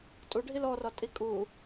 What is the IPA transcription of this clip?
tʼ u ɖʱ i l ɔ r ɒ tʼ i kʼ u

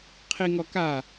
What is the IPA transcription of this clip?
qʰ i ŋ ɔ k a

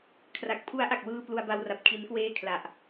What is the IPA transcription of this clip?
kʰ r a˨˩ k̚ pʰ u˦˥ a̯ ʔ a˨˩ k̚ w ɯː˧ p l u˧ a̯ b a˧ w r a˨˩ p̚ kʰ i˦˥ n k w eː˥˩ kʰ l a˨˩ ʔ

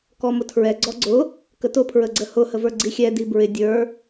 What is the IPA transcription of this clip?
k ɔ m ʊ tʰ ɹ ɛ ɡ͡ǀ ɔ ɡ͡ǀ ʊ | k ə t ʊ pʰ ɹ ə ɡ͡ǀ ə h ʊ h ə v ə˞ ɡ͡ǀ i xʲ ɛ d i b ɹ ɪ dʲ ə˞

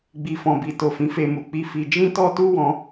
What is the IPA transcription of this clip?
ɡ͡b i˨ f ɔ̃˨ b i˨ t o˨ f ĩ˨˦ f e˧ m u˨ k͡p i˧ f i˧ d͡ʒ ĩ˦ t ɔ˦ t u˦ w ɔ̃˧

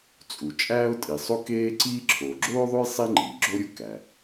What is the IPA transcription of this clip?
t͡sʼ u˩ t͡ʃʼ æː˥ ʊ̯ tʼ i˩ sˤ o˥ k eː˥ ǀ iː˥ ǁʰ oː˩ ɡ͡ǁ oː˥ ðˤ o˥ j sˤ i˥ ŋ͡ǃ iː˩ ɡ͡ǁ o˥ ɾʲ u˥ k æ˩

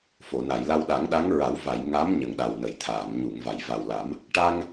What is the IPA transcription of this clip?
f o˨˩˨ n a˨˩˨ j l a˧ w ɗ a˨˩˦ ŋ ɗ a˧˥ ŋ ɹ a˨˩˦ w v a˨˩˨ j ŋ a˧˥ m ɲ ə˨˩ ŋ ɗ a˨˩ w n ə˨˩˨ j t̪ʰ aː˨˩˨ m ɲ u˨˩˨ ŋ v a˨˩˨ j v a˨˩ w l a˨˩˦ m | ʈ a˧ ŋ

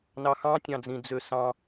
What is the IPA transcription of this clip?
n ɑ x ɑ̃ tʲ ɑ̃ d͡z ĩ d͡z ø s ɑ̃

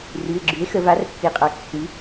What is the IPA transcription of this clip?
r ʉ˩˧˩ e̯ ɡ͡ǁ ʉ˩˥ e̯ x ə˩˧ v a˩˥ r pː i˩˧ qʼ a˩˧ kː ʉ˩˧

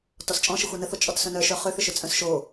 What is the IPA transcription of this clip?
t ɔ s t͡ʃʼ ɔ̃ ʃ ɘ xʷ œ n ə θ o t͡ʃʼ ɔ t s œ̃ n œ ʃ œ χ ø θ ʏ ʃ ʏ t͡sʼ œ̃ s ʃ o

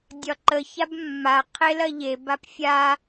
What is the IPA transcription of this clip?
dʲ ɒ ǃ ə ç a b mː a qʰ e l ɐ ʎ e b a p fʲ a

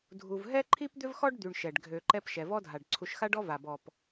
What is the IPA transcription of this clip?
dʱ u˨ v ɦ ɛ˥ ǃʰ i˥ p d̪ ʏ˥ v x ɔ˥ ɖ d̪ y˨ ɳ ʃ ɛ˩ ɖ ɡʱ ø˨ ǃ ɛ˦ p ʃ ɛ˩ v ɔ˦ dʱ a˩ ɖ ǀʰ u˨ ʃ x a˦ ɖ ɔ˦ v a˩ b ɔ˩ p

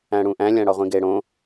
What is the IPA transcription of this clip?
æ̃ ɽ ũ ʔ æ̃ lʲ æ̃ ɽ ɒ ʁʷ ĩ ɡ e ɽ õ

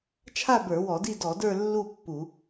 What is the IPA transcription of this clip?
t͡ʃʰ a˥˧ b ə˞˧˩˧ w ɔ˧˩˧ d i˥˧ d ɔ˧˩˧ d ə˞˥˧ lː u˥˧ pː u˧˩˧

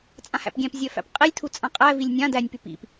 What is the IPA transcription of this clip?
t͡sʼ ã h æ̰ p ɡʲ æ̃ p zʲ œ f æ̰ p qʼ i lʲ tʰ u t͡sʼ ã qʼ æ v i lʲ nʲ ã d æ nʲ p y p ḭ p

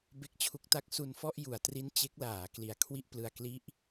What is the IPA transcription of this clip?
b e˦˥ k̚ t͡ɕʰ u˦˥ k̚ t a˦˥ k̚ s u˧ n f ɔ˥˩ ʔ j u˩˦ a̯ t r i˦˥ n t͡ɕ e˦˥ k̚ l aː˩˦ k l i˨˩ a̯ kʰ w i˥˩ ʔ p l ɯ˧ a̯ k l i˦˥ ʔ

